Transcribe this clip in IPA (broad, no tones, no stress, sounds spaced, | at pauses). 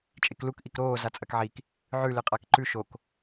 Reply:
t͡ʃʼ e k l u k ʔ i k ɾ oː z a t͡sʼ ɐ k ʕ i k | ʕ ʉ l ɨ qʼ a k ǃ ʉ ʃ o k